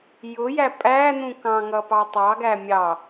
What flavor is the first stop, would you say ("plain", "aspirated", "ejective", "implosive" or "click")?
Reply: ejective